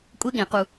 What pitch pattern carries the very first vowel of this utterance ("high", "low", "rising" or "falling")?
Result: high